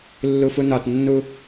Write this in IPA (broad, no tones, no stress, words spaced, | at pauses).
lːufunɒtnːu